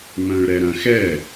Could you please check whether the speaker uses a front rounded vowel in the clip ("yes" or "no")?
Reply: yes